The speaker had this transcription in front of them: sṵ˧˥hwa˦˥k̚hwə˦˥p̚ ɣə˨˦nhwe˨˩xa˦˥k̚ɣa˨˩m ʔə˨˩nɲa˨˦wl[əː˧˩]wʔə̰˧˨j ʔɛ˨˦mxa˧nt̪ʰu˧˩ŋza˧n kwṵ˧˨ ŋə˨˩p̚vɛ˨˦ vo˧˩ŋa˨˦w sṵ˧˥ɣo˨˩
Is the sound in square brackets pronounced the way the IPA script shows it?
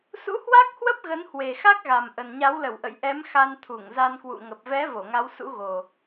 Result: no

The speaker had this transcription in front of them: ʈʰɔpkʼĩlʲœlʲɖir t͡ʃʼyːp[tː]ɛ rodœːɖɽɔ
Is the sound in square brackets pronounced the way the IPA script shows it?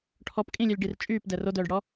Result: no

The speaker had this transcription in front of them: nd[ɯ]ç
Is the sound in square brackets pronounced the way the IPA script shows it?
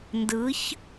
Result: yes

